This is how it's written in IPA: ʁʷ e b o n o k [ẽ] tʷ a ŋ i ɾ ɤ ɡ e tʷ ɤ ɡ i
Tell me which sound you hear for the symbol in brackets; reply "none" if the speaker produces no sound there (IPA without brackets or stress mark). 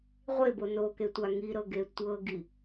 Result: e